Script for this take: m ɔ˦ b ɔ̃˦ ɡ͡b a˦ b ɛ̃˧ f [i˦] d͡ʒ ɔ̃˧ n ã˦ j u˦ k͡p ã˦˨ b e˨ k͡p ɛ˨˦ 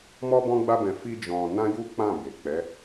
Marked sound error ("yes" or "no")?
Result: no